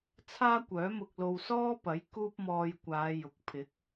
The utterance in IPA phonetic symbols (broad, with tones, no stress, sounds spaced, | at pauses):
t͡sʰ aː˥ kʷ œː˨˥ m ʊ˧ k̚ l o˧ w s ɔː˥ p ɐ˨˥ j k uː˥ p̚ m ɔː˧ j kʷ aː˨˧ j ʊ˨ k̚ pʰ ɪ˨˥ k̚